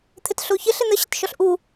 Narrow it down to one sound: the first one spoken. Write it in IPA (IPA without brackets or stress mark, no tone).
t̪ʰ